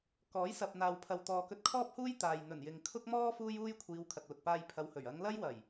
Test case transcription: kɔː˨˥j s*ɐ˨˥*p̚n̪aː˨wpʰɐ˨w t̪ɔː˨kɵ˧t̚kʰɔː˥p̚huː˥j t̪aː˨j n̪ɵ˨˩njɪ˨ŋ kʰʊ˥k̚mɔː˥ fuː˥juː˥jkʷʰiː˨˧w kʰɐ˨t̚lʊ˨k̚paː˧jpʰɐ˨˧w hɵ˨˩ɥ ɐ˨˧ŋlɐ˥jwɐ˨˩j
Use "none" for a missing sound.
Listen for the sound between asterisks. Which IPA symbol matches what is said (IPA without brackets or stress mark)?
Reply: ɐ˨